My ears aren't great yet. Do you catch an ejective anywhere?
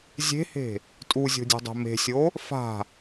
yes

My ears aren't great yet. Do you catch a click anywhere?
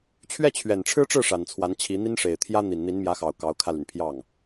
no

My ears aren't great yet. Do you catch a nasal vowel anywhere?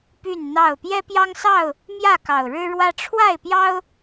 no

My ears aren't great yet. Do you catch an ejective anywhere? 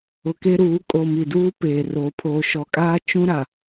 yes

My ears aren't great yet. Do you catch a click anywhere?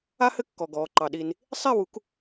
yes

